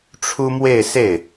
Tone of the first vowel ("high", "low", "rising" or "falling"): high